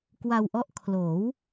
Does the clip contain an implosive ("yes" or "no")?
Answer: no